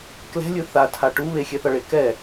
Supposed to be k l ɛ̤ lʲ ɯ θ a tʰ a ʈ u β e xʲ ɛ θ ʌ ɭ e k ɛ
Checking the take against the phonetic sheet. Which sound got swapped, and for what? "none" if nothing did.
none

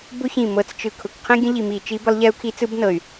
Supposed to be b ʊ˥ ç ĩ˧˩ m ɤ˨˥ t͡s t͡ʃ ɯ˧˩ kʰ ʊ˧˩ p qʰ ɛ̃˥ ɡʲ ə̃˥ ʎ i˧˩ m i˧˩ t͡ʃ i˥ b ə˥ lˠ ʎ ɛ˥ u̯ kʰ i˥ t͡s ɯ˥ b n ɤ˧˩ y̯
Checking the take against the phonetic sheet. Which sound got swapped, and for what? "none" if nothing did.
p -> k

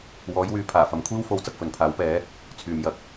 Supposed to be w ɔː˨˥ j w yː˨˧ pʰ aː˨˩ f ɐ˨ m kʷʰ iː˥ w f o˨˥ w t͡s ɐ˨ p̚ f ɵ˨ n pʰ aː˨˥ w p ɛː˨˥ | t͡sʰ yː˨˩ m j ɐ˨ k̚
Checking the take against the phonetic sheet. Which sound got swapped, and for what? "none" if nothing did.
none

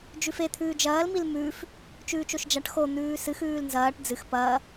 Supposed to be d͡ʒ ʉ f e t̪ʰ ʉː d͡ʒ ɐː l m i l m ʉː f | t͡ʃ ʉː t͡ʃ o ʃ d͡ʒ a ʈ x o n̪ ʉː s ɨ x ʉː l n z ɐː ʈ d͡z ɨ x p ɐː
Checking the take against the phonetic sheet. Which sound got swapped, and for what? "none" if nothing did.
none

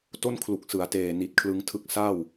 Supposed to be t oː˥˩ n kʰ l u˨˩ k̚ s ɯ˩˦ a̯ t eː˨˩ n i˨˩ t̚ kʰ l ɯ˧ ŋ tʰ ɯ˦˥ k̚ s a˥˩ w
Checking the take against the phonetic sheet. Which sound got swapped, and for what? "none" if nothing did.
oː˥˩ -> o˥˩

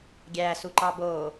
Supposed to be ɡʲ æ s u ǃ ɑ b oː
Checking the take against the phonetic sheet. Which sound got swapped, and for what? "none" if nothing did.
none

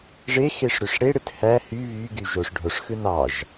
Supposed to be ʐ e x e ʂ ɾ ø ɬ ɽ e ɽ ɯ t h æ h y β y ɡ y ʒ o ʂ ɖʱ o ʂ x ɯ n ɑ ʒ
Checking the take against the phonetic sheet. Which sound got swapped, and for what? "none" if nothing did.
ɬ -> ʂ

